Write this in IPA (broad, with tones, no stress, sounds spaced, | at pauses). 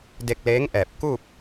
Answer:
d e˧ k̚ l eː˧˥ ŋ ʔ ɛː˧˩ p̚ k u˥˨ p̚